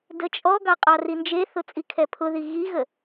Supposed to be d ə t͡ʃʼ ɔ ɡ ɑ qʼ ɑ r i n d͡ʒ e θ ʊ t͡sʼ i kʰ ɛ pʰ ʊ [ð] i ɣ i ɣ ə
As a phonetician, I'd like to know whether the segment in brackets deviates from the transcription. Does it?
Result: no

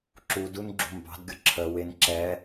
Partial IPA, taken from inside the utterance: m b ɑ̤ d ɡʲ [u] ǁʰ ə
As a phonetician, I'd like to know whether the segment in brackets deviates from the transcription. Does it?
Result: yes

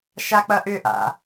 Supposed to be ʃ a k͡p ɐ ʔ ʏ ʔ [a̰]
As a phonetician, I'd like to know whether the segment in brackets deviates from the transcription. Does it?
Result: no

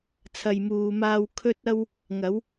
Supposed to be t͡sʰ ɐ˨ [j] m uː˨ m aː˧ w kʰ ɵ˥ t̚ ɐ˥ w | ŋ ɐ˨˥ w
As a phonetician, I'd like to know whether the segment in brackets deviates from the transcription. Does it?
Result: no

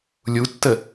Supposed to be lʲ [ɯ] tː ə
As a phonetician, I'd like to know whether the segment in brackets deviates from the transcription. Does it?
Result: yes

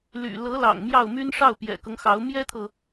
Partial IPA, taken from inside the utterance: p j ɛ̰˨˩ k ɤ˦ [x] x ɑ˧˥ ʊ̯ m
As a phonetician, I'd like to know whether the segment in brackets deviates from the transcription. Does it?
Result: yes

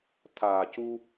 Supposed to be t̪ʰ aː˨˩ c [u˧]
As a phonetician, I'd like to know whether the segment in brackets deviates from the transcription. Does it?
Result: no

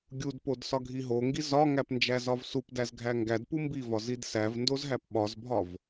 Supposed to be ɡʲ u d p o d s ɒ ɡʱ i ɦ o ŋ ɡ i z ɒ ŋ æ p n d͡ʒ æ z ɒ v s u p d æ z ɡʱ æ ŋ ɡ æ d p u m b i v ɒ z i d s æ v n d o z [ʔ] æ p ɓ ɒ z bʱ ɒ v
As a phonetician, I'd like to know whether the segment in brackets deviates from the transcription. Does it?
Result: yes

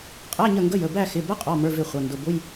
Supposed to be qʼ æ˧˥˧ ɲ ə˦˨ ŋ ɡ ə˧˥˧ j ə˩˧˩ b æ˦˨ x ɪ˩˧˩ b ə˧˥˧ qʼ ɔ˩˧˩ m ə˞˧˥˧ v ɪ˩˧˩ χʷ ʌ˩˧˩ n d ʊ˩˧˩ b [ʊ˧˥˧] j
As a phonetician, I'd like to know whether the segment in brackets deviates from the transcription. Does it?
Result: no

